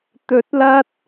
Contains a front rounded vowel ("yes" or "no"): no